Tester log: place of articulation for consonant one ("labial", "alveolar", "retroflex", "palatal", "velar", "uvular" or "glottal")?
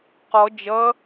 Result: uvular